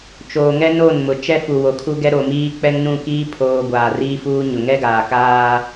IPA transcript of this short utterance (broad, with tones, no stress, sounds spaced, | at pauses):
t͡ʃ oː˨ ŋ ɛ˦ n o˦˨ n m ʊ˨ t͡ʃ ɛ˦ f u˨ w o˨ kʰ u˦ ɡ ɛ˦ ɾ o˨ m iː˦ k͡p ɛ˦ ŋ n ũ˦˨ k iː˦ pʰ oː˨ ɡʷ aː˨ r iː˦ f uː˦ ɲ ʊ˨ ŋ ɛ˦ ɡ aː˨ k aː˦